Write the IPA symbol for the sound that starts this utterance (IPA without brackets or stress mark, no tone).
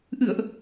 ʔ